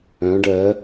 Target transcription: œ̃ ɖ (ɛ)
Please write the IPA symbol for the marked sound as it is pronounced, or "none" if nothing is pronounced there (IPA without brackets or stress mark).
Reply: ɜ